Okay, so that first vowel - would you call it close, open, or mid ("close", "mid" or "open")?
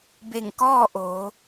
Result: mid